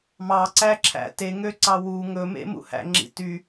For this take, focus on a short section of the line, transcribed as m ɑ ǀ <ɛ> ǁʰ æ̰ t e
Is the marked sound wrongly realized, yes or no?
yes